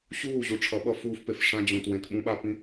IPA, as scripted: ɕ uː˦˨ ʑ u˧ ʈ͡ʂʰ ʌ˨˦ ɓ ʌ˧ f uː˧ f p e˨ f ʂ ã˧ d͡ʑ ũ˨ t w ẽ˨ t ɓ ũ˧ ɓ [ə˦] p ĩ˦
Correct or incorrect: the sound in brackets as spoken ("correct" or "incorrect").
incorrect